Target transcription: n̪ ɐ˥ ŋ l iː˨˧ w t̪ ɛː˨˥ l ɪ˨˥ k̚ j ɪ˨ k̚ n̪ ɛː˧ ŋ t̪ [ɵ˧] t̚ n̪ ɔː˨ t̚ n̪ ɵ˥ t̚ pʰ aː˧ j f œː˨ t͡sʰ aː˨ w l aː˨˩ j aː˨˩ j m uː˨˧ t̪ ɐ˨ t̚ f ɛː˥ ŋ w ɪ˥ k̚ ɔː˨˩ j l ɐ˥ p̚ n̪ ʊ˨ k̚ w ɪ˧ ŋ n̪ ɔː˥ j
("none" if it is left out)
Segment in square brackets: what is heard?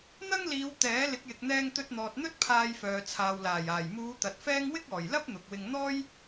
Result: ɵ˧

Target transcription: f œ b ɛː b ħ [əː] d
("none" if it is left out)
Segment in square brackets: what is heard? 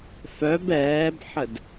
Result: ə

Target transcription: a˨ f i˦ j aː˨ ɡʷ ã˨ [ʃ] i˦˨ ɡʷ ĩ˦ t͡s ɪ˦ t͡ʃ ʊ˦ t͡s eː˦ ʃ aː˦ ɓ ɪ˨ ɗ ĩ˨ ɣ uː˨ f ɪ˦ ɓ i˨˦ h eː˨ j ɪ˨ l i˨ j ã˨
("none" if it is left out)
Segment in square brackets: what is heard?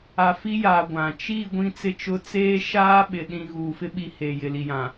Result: t͡ʃ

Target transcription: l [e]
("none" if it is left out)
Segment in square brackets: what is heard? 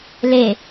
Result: e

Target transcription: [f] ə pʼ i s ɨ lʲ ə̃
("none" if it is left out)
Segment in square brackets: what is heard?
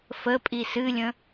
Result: f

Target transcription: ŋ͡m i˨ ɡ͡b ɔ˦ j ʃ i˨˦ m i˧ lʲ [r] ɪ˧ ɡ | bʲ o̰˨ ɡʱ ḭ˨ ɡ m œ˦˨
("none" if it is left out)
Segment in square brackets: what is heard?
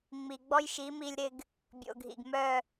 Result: ɾ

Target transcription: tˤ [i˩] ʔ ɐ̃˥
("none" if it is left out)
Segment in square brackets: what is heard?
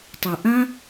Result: i˩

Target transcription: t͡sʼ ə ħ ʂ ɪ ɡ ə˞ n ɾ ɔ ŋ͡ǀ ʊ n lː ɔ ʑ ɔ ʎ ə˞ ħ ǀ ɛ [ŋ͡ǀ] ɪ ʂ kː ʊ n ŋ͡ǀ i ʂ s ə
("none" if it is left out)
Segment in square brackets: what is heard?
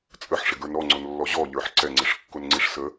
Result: ŋ͡ǀ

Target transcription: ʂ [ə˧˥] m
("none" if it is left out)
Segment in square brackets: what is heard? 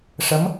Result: ə˧˥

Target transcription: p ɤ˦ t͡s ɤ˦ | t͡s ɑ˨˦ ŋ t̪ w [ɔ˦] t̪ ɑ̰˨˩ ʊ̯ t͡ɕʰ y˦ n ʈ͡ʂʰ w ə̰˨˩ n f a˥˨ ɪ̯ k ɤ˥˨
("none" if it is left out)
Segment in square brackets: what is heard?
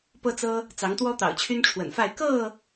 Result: ɔ˦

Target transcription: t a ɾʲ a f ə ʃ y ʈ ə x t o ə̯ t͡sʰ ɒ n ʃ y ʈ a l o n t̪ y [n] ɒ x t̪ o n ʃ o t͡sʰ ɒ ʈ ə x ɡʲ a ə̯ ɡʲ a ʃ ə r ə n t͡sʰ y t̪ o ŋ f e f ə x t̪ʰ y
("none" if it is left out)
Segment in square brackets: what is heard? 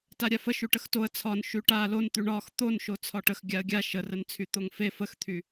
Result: ɳ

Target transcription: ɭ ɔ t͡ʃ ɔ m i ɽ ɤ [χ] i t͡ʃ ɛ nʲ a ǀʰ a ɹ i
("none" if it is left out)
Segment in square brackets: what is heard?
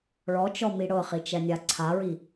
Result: χ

